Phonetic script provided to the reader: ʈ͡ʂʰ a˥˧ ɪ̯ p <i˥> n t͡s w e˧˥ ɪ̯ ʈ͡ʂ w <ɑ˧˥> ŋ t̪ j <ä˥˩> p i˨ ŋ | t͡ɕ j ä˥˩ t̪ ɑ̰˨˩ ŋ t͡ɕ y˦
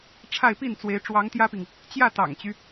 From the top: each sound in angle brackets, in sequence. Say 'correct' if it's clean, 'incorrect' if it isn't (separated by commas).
incorrect, correct, incorrect